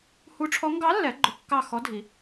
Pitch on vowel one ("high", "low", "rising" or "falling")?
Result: rising